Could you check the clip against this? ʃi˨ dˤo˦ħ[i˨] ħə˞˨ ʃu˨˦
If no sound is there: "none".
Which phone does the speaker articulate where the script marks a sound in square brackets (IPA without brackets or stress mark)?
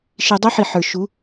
i˨